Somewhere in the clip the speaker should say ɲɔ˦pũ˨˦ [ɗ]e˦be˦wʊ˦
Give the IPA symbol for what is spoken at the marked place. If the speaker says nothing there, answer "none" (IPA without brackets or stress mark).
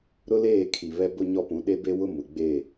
ɗ